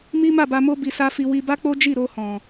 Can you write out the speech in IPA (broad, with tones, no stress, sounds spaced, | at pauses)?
m i˦ m a˦˨ b a˧ m o˦ b i˧ s a˦ f i˧ w i˧ b a˦ k͡p o˦ d͡ʒ i˦˨ ɾ o˧ h ɔ̃˨